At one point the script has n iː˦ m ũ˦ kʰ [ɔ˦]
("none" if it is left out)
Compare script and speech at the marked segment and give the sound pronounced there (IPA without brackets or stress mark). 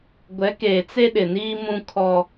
ɔ˦